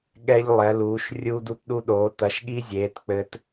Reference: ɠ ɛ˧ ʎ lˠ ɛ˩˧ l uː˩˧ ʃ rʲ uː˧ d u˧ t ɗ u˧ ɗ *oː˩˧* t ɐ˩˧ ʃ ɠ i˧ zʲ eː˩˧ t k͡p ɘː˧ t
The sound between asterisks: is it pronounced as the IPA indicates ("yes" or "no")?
yes